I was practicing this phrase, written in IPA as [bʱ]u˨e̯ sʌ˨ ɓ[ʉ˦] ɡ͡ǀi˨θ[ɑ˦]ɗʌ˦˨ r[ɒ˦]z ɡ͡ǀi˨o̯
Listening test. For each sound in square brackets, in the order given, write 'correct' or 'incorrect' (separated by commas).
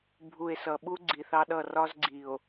correct, incorrect, correct, correct